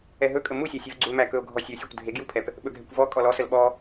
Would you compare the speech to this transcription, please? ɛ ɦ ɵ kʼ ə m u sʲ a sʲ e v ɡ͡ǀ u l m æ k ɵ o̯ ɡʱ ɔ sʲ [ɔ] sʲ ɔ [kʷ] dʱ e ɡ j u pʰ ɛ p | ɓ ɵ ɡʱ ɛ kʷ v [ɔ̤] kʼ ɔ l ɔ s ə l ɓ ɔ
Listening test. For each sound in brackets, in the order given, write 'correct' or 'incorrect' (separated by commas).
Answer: incorrect, correct, incorrect